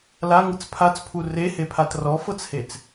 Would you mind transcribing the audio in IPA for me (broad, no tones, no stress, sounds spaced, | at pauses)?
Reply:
l a ŋ ɯ t͡s pʰ a t͡s pʰ u r e h e pʰ a t r ɔ f ɤ t͡s h e t͡s